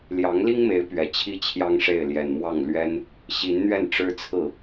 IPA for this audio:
ljɑ˧˥ŋli˥ŋme˧˥ɪ̯ pɥɛ˨˩t͡ɕʰi˥t͡ɕʰjɑ˥ŋʂe˥˩ɪ̯ ljɛ˨˩nmwɑ˥˩ŋlɥɛ˥n | ɕi˧˥nn̪ɥɛ˥˩n ʈ͡ʂɻ̩˥t͡sʰɹ̩˥˩

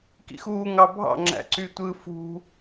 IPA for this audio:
kḭxuː ŋɑbʱɑ̰ ŋ͡ǁæ̰ǀytʷɯ fṳ

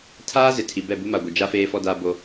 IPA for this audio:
tʰaː˦ zɪ˨tʰi˨ bɛ˦˨bu˦ma˨ɡʷɪ˨ d͡ʒa˦ feː˦fɔ˦ daː˦bo˦

